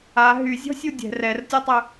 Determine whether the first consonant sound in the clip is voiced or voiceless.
voiced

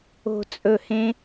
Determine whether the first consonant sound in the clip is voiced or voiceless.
voiceless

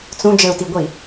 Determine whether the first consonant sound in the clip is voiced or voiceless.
voiceless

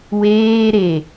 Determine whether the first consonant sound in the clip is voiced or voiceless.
voiced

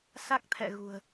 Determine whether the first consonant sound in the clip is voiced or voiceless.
voiceless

